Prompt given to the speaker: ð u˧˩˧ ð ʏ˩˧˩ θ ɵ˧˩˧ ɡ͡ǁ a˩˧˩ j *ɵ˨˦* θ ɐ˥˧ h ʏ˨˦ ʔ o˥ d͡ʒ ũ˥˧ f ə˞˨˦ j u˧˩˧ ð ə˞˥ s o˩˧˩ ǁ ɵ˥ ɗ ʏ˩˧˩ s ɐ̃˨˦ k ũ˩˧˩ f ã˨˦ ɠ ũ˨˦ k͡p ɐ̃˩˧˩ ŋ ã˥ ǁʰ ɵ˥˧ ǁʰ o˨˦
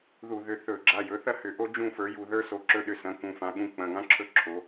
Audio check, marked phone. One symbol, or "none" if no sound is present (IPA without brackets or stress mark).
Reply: ɵ˨˦